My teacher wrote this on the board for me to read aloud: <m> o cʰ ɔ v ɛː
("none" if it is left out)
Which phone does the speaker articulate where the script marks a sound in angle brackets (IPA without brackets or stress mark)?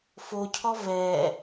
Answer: f